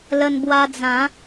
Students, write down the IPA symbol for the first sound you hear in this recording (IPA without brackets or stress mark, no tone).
l